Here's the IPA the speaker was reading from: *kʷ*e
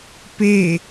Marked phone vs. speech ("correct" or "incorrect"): incorrect